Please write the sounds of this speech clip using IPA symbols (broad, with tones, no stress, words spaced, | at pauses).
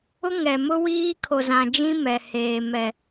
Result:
ʊ˦ ŋɛ˨ mʊ˦ wiː˦kʰo˨zã˨d͡ʒĩ˦ mɛ˨heː˨ mɛ˨